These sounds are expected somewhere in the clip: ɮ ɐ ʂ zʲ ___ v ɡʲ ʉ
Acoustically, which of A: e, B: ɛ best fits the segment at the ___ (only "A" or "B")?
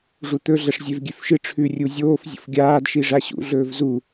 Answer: A